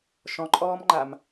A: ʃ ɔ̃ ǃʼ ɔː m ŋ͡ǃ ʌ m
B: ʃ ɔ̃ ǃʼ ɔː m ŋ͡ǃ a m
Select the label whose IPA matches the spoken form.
B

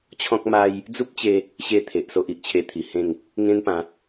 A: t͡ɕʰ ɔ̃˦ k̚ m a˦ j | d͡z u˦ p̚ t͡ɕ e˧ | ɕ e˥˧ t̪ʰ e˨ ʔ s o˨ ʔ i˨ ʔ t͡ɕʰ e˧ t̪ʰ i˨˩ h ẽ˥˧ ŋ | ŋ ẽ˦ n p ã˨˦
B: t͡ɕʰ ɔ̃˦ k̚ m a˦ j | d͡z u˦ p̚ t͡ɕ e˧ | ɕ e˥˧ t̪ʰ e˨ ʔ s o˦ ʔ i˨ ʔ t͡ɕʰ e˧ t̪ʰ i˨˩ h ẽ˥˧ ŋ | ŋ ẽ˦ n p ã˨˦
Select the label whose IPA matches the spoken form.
B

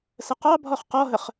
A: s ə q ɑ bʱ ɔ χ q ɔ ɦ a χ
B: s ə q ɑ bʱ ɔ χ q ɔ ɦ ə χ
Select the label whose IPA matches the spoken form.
B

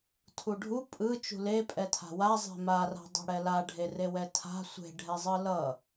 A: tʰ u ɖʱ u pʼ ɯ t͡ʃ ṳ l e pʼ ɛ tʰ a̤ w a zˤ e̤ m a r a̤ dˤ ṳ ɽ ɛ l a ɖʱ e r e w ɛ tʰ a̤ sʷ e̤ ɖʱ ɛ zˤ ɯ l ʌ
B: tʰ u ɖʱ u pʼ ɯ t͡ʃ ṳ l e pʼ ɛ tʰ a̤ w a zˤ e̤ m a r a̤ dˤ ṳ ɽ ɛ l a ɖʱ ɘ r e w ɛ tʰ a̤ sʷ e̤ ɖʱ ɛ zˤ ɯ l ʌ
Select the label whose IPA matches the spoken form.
A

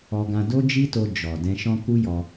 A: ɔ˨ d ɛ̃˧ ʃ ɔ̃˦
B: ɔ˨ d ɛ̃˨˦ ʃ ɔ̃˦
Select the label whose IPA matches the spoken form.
A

